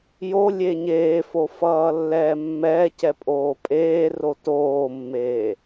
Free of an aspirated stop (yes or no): yes